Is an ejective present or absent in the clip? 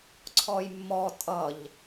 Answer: present